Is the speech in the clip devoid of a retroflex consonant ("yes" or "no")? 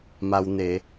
yes